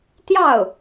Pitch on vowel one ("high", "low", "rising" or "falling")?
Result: falling